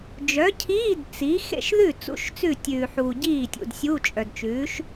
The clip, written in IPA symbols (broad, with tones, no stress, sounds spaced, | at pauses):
d͡ʒ œ˨˥ cʰ iː˧˥˧ d t͡s i˨˥ x ḛ˥˩ ʃ ð ʉ˥˩ t͡s ṵ˦˥ ʃ t͡s ʉ˥˩ tʲ ʉː˨ ħ uː˨ ɟ iː˥˩ tʲ ṵ˨ d sʲ u˧˥˧ t͡ʃʼ œ˨ d t͡ʃ ʉː˨˥ ʃ